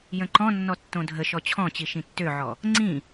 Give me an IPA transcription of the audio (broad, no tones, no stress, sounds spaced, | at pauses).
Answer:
j ə̃ ǃ ɔ̃ nː ɔ tː õ dʱ ə ʃ ɔ t͡ɕʰ ɔ̃ t͡ɕ i ʃ ĩ tː ø ʕ ɔ | ŋ͡ǀ ĩ